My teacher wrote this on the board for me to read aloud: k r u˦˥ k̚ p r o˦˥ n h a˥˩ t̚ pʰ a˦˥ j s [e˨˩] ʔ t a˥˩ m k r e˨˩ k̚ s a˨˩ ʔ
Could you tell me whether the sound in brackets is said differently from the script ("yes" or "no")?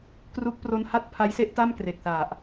yes